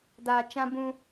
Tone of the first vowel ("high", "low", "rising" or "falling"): low